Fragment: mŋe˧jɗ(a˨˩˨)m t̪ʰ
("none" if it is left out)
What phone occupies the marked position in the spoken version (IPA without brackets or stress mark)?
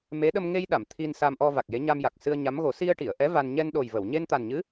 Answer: a˨˩˨